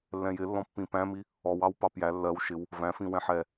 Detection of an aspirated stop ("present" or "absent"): absent